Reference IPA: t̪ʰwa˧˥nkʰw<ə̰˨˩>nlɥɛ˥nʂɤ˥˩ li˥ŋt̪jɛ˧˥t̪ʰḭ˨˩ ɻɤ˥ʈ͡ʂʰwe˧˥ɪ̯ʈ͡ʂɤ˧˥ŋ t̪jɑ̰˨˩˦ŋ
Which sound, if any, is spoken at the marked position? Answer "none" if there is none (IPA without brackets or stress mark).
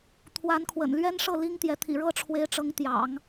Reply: ə̰˨˩